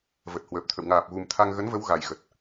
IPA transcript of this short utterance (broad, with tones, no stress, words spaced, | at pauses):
və˨˩t̚hwəː˨˩p̚t̪ʰə̰˧˨w ŋaː˨˩p̚ɣu˨˩m t̪ʰa˧ŋ ɣə˨˦nvə˨˦w ɣa˨˩jɣə˨˩t̚